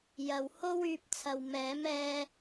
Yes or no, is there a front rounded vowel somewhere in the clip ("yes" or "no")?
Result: yes